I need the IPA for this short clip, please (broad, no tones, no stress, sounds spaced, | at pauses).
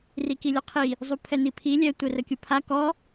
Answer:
r i k i lʲ ɔ qʰ i | zˤ u pʰ ɛ n i pʰ i lʲ ɛ tʷ ɛ r ə kʲ u pʰ a k ɔ